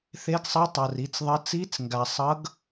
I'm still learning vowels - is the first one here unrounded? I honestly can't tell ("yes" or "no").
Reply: yes